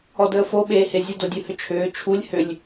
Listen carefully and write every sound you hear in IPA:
ɔ d əː f o ɓ eː h e zʲ ə d o dʲ ɯ h ʏ t͡ʃʰ ʏː t͡ʃʰ u lʲ h ʏ lʲ

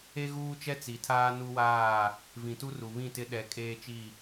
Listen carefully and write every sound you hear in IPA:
e˦ ɣ uː˦ t͡ʃ ɛ˦ t͡s i˨ tʰ aː˦ n u˦ w aː˦˨ | v ĩ˨ t u˦ r u˨ β ĩ˦˨ t ɪ˦ ɗ ɛ˦ kʼ eː˦ t͡ʃ i˦˨

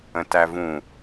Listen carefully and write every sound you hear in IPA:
ə̃ t æ v ũ

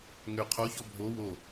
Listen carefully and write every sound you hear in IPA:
ŋ ø qʰ o ç ɔ bʱ o w o

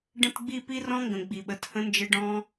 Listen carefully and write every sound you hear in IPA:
ɖ ə̃˦ t ɡ͡b i˦ p i˧ r ɔ̃˧ ŋ ɡ ə̃˨ ɡ͡b i˨ ɓ ə˨˦ t h ə̃˧ n d͡ʒ ɘ˧ ɖ ɔ̃˧

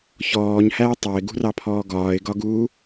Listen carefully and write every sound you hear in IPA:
ç ɔː ɲ h æ ɪ̯ tˤ ɑ ɪ̯ ɡ ṳ r ɑ pʰ ɔː ɡ ɒː ɪ̯ ɡ ɒ ɡ uː

